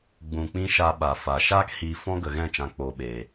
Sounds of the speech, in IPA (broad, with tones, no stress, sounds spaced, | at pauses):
ɡ͡b ũ˨ k͡p ĩ˦ ʃ a˦ ɓ a˨ f a˨ ʃ aː˦ k h iː˨ f ɔ̃˦ ɡ ə˨ ɣ ɛ̃˦˨ t͡ʃ ã˦ k͡p oː˧ ɓ eː˨